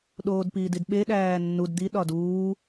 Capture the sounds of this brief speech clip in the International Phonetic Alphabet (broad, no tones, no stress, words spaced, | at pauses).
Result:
ɗoːdpiːdidɓe ɗæːnːud d̪i ɗɒduː